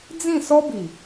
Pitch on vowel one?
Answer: falling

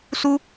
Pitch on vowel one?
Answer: high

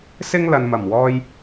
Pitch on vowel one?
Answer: high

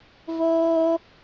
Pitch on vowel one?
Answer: high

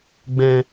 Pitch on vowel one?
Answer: low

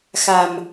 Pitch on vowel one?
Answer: low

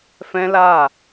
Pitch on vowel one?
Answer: high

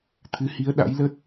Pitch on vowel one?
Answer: rising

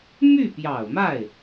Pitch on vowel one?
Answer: falling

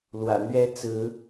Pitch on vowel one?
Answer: low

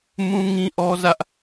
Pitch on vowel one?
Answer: high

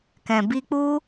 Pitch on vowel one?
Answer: low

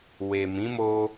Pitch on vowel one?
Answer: low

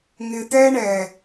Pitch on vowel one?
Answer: low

